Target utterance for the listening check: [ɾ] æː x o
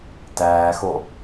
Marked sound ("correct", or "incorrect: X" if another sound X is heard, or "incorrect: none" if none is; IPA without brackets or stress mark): incorrect: t